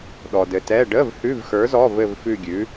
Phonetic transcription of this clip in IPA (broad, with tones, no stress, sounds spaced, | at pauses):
ɗ ɔ˨ d ɘ˨ t ɛ˧˥˧ ɖ ə˧˥˧ v h ʉ˧˥˧ v x ə˞˨˥ z ɔ˧˥˧ v ɘ˥˧ v f ʉ˥˧ ɡʲ ʉ˨˥